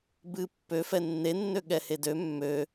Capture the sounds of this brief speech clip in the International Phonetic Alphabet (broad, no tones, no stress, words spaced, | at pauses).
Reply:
bɨ pːøfɛ nːenːø ɠɛhedø mːø